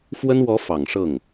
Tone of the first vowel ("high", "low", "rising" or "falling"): high